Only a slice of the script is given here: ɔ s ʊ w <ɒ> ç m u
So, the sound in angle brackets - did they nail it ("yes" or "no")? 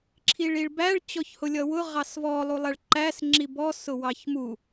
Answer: no